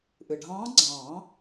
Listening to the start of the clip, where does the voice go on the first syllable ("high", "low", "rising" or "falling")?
low